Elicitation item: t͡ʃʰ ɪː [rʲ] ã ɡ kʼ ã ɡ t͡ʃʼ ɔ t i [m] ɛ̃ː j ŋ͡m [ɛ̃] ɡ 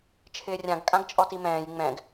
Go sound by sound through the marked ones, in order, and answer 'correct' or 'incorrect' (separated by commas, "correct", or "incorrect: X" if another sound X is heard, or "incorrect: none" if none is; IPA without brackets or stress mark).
correct, correct, correct